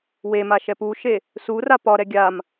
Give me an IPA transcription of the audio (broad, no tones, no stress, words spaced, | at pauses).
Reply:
wema ʃɛpuʃe | sura pɒɾɛ ɡʲam